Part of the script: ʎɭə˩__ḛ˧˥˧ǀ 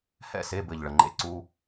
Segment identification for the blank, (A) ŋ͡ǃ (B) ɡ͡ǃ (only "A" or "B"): A